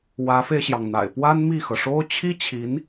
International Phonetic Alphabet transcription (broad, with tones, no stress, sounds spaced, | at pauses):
w ä˧˥ f e˧ ɪ̯ ɕ j ɑ˩ ŋ n̪ a̰˨˩ ɪ̯ p w a˥ n m i˥˩ x ɤ˩ ʂ o˥ ʊ̯ t͡ɕʰ i˥ t͡ɕʰ i˧˥ n